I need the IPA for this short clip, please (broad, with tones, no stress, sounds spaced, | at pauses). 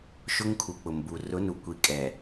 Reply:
ʃ ʊ˦ ŋ kʰ u˨ k͡p ʊ˨ m b u˨ r ʊ˨˦ n u˨ kʷ i˨ kʼ ɛ˨